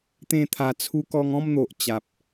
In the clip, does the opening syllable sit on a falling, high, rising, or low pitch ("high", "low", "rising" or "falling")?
falling